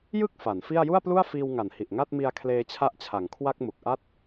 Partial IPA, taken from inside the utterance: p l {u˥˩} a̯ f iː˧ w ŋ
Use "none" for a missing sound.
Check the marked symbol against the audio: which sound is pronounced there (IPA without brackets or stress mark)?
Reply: u˥˩